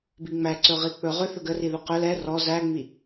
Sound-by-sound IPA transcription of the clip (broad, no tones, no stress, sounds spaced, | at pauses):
b i ŋ͡m æ ǀ ɵ ʁ i k͡p ɵ ʁ ʏ θ ɵ ɡ ə r i ð ɵ q ɵ l ɛ r ɔ z æ ŋ͡m i